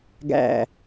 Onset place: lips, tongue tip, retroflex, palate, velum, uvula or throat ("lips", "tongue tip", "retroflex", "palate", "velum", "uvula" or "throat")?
velum